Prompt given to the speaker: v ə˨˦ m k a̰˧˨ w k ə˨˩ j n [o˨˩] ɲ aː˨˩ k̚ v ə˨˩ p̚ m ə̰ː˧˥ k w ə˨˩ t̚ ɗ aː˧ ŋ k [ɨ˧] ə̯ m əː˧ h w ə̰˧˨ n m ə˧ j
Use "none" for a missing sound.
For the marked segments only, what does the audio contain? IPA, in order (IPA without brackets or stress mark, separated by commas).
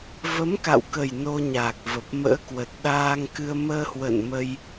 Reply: o˧, ɨ˧